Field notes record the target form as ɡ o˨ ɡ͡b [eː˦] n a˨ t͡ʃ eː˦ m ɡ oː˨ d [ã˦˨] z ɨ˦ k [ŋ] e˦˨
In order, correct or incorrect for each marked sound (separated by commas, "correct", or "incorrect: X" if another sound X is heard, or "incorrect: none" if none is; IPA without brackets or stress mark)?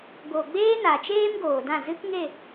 correct, correct, correct